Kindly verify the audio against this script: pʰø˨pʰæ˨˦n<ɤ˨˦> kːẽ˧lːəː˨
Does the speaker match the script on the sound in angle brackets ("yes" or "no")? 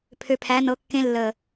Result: yes